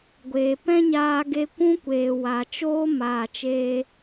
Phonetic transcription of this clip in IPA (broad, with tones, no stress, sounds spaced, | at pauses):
ɡʷ eː˨ p ɛ̃˦ ɲ aː˧ ɡ e˧ kʷ ũ˦ kʷ eː˨ w a˨ t͡ʃ oː˦ m aː˨ t͡ʃ eː˧